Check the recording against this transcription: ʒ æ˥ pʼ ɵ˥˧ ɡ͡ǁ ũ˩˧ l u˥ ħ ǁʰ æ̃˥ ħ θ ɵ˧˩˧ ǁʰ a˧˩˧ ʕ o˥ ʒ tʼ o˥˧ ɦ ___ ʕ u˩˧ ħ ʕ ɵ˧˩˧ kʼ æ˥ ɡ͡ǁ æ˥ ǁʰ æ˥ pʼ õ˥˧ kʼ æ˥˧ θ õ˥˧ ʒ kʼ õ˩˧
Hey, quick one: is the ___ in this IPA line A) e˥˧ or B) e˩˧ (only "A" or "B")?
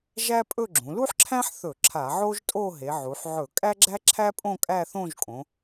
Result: B